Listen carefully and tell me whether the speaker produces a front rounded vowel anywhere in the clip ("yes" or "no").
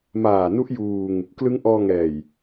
no